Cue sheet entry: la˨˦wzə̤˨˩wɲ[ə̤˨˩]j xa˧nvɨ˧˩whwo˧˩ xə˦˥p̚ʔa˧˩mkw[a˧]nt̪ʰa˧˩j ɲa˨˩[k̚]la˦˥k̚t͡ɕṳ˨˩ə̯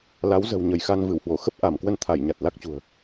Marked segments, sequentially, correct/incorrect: incorrect, incorrect, incorrect

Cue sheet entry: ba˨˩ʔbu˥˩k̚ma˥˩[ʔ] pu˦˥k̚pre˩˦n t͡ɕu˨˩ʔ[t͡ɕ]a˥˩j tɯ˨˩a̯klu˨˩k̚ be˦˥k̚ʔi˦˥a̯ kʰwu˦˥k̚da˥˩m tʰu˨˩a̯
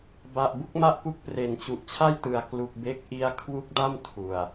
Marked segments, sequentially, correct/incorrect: correct, incorrect

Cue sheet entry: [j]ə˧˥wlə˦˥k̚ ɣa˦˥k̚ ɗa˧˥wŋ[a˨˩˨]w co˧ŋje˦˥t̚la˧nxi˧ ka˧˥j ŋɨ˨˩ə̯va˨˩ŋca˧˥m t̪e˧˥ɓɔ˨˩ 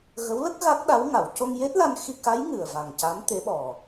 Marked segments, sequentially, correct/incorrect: incorrect, correct

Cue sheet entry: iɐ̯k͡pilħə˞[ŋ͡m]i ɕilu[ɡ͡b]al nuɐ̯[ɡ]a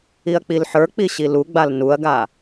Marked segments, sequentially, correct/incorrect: incorrect, correct, correct

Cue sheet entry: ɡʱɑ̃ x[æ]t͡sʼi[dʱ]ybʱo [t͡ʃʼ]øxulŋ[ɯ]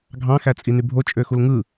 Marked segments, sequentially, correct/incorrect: correct, incorrect, correct, correct

